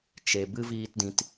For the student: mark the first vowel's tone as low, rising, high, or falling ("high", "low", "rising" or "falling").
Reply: low